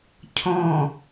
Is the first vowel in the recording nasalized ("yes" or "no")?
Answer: yes